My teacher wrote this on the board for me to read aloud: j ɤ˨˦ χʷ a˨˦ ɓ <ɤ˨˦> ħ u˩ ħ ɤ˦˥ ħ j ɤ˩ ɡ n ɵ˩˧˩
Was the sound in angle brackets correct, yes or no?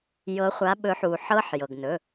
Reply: no